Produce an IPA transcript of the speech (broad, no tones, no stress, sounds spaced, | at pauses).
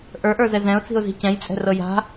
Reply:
ʔ ə˞ ʔ ə˞ z ɛ z ɛ̃ ʊ̯ t͡s i̤ ʊ̯ z i̤ c ɛ̃ j t͡sʼ ɛ̤ r ɤ j a̤